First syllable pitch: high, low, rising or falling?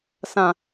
low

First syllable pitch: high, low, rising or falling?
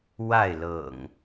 falling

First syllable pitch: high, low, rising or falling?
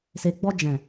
low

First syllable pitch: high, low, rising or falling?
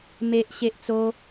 high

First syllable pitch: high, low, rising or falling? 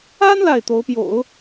high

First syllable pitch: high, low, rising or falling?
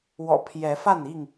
low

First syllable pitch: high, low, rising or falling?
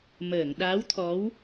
low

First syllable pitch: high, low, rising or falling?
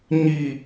low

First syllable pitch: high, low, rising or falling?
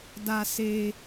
high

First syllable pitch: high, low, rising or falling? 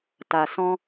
low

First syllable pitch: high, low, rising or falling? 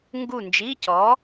falling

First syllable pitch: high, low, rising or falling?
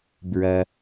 low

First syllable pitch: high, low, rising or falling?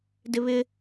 high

